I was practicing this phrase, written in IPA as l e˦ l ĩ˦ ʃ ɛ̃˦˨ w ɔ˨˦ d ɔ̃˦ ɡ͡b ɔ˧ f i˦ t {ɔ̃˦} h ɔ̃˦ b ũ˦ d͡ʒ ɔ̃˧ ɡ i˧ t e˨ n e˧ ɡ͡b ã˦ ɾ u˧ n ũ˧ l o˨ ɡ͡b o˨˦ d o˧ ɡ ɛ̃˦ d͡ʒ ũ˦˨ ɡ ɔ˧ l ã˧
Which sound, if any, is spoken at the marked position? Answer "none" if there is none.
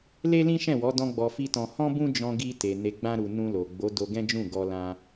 ɔ̃˧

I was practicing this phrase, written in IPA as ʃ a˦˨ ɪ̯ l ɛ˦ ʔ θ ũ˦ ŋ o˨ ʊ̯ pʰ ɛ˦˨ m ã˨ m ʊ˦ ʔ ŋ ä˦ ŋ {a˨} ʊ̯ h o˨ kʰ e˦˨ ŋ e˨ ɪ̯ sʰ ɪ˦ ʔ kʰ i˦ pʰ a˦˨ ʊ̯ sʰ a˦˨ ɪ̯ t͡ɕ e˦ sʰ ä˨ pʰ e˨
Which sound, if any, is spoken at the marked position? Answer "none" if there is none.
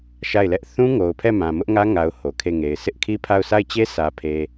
a˨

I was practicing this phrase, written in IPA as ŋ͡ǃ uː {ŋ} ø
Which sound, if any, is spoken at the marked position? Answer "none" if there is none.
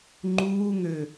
ŋ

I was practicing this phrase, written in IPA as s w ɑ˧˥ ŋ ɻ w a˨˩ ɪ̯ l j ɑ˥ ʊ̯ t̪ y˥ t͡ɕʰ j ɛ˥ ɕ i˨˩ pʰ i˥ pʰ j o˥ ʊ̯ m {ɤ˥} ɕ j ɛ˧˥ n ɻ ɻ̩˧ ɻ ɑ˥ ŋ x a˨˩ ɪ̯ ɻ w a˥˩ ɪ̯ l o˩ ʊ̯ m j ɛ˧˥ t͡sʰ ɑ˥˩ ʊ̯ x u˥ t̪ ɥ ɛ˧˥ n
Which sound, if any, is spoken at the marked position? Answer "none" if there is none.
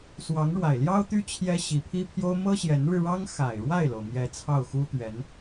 ɤ˥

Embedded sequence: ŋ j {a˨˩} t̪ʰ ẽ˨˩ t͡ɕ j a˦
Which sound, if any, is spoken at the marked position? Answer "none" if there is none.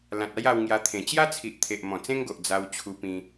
a˧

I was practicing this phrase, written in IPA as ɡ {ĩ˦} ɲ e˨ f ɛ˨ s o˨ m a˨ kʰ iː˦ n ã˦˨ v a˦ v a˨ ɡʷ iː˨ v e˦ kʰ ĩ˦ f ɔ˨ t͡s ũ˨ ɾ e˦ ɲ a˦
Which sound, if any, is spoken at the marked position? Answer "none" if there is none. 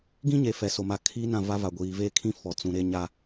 ĩ˦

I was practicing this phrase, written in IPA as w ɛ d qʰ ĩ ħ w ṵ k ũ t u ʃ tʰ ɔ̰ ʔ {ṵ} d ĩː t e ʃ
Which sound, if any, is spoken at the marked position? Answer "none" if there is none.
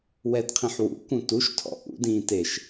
ṵ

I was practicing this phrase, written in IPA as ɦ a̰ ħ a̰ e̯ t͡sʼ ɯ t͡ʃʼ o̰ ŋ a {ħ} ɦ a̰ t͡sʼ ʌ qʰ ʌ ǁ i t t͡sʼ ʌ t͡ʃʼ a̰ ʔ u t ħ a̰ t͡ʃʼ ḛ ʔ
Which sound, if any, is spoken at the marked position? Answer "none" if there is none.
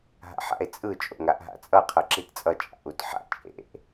ʔ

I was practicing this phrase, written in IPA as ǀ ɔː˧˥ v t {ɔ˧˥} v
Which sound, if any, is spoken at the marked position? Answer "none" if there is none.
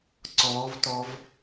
ɔ˧˥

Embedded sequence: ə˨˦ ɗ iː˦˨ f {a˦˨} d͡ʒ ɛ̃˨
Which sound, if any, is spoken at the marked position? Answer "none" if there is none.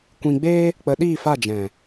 a˦˨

